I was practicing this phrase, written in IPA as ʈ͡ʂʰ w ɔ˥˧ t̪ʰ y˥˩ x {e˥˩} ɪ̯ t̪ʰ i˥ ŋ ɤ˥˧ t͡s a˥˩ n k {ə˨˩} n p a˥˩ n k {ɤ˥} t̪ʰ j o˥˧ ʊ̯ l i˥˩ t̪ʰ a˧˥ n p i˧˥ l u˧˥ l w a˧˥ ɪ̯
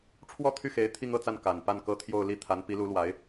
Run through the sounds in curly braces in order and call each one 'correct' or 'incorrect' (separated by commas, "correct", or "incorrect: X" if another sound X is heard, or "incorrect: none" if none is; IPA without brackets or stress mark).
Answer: incorrect: e˧˥, incorrect: a˨˩, correct